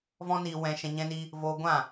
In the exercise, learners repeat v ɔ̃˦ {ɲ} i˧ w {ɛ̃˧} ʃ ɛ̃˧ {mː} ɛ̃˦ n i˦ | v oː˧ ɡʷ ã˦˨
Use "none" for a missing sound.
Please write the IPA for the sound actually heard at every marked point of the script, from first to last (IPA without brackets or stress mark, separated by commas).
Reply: n, ɛ̃˧, ɲ